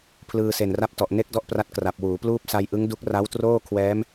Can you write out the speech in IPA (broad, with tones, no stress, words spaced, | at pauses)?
pʰlɯː˧se˨˩nra˥˩p̚tɔ˨˩ʔ ne˥˩k̚dɔ˥˩ʔpra˦˥t̚ kra˨˩p̚ wuː˩˦pluː˥˩p̚ sa˧jʔɯ˦˥ŋdu˦˥k̚ ra˦˥wtroː˥˩ kʰwɛː˦˥m